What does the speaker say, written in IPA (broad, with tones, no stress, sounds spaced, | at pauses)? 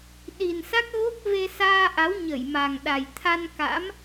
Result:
ɗ i˨˩ n s a˦˥ k̚ ɣ o˦˥ k̚ v e˧ s aː˧ ʔ a˨˦ w ɲ ə˧˩ j m a˨˩ ŋ ɗ a˨˩ j t̪ʰ a˧ n k a̰˧˥ m